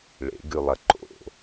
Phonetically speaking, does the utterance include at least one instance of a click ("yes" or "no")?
yes